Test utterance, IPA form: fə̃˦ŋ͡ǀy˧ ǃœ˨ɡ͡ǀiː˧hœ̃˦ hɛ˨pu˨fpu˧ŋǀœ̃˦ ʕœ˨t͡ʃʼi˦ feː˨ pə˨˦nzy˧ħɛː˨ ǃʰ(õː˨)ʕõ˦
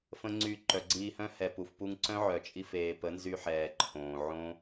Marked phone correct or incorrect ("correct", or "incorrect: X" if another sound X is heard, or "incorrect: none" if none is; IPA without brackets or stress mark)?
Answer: correct